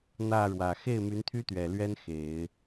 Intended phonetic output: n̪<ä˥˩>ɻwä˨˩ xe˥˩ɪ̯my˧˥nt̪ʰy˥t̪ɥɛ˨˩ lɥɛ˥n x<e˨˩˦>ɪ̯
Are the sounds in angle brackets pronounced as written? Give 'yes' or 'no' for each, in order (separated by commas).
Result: yes, yes